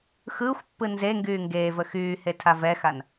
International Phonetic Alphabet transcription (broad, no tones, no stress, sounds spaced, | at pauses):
x ɯː xʷ pː ɯ n z e ŋ ɡ yː ŋ ɡ eː v ə x yː h e tʰ a v ɛ x a n